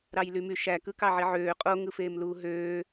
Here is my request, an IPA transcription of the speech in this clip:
ɾ ɑ j l y m y ʃ æ k ɯ k ɑ ʕ i ʕ øː qʼ o ŋ ɯ f eː m l uː ɦ øː

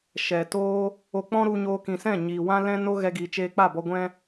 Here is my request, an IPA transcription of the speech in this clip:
ʃ ɛ˨ t oː˦ | o˧ k͡p ɔ̃˦ ɾ u˧ ɲ oː˧ k ĩ˨ s ɛ̃˦˨ ɲ iː˨ w ã˦ l ɛ̃˦ n o˦ ɣ ɛ˧ ɡ iː˨ t͡ʃ eː˧ k͡p a˦˨ b ɔ˧ ɡʷ ɛ̃˦

